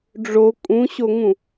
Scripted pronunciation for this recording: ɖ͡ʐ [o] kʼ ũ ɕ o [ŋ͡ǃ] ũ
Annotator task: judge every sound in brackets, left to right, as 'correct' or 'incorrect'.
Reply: correct, incorrect: ŋ

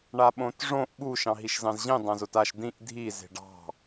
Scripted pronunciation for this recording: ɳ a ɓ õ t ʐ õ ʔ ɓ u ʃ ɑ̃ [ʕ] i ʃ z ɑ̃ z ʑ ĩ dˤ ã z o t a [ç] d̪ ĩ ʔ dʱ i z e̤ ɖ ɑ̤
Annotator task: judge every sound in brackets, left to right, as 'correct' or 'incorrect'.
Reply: incorrect: ɦ, incorrect: ʃ

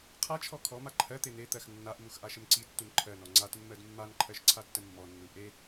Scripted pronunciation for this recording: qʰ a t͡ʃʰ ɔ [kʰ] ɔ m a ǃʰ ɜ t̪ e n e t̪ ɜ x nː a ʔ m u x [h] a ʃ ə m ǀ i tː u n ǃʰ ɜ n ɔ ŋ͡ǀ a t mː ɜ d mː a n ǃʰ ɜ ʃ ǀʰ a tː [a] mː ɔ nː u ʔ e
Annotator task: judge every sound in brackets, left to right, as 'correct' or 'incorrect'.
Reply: correct, incorrect: ʔ, incorrect: ə

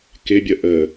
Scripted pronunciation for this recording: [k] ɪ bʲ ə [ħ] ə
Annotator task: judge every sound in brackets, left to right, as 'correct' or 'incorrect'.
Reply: correct, incorrect: ʔ

